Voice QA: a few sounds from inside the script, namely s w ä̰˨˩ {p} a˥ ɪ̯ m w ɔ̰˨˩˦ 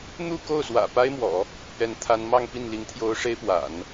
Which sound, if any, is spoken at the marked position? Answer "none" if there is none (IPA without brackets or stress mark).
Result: p